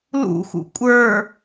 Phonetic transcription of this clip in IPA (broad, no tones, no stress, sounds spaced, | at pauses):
l ṵ x ṵ kʷʼ ə˞